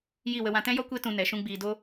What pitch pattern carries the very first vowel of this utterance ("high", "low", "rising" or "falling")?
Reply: falling